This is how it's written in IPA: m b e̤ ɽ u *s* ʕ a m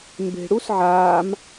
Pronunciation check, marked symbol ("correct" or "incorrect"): correct